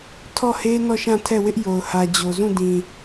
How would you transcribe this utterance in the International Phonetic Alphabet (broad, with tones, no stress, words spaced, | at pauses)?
tʰɔ˦˨he˦ nɔ˦˨ʃã˦˨tʰɛ˦˨wɪ˦ʔ jo˨ʊ̯hä˨d͡ʑo˨ zũ˦˨dĩ˨